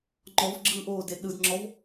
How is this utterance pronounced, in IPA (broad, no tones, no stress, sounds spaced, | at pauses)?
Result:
ŋ͡ǃ ɔ v ɡ͡ǁ ɯː ʔ oː d e ɗ ɯ d ŋ͡ǁ ɔ v